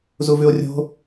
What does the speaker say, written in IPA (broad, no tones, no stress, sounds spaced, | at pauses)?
z u v ʉ o̯ rʲ o̤